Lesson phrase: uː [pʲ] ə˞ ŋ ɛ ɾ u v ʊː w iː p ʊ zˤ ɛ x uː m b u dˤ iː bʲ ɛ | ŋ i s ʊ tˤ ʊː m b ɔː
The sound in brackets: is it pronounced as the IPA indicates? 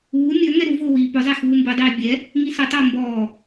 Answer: no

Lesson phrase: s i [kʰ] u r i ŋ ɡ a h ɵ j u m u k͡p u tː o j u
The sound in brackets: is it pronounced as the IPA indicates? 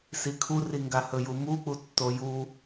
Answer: yes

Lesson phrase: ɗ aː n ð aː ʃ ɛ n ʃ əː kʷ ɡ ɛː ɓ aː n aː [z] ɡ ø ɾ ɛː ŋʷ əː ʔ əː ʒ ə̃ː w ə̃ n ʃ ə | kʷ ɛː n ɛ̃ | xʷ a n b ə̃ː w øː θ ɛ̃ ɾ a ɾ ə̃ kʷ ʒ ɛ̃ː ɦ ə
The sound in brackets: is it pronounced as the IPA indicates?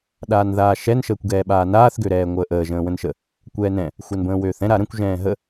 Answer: no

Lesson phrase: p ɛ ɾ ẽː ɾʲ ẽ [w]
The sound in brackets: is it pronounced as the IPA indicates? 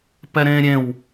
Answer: yes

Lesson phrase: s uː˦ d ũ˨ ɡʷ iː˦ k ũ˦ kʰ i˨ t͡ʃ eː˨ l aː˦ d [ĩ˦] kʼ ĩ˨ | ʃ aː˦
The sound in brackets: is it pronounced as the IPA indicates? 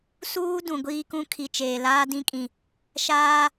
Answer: yes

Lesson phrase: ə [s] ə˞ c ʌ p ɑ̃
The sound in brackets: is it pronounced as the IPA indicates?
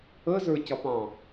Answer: no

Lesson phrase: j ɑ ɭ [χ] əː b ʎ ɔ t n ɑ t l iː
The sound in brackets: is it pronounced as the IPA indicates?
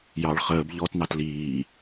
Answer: yes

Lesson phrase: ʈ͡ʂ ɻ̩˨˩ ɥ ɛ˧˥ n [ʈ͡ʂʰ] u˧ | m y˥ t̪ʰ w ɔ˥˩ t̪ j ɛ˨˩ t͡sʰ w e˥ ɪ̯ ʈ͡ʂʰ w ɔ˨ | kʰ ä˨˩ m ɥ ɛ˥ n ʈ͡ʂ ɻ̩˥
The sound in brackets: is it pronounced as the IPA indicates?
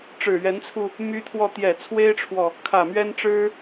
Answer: no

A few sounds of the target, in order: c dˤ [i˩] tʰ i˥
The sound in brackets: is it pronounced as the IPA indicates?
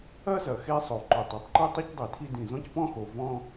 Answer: yes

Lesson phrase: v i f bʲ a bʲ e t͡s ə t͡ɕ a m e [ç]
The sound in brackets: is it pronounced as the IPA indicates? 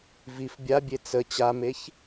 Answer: yes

